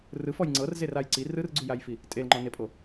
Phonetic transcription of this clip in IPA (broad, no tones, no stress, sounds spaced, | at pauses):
r ɯ f ɔ j ŋ͡ǀ ɤ r z e r a j ǀ i r ɯ r ɡ͡ǀ u j a j f i | tʼ e l ŋ͡ǃ ɔ n e pʼ o